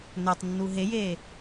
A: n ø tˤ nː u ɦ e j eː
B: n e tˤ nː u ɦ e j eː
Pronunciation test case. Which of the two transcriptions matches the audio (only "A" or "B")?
A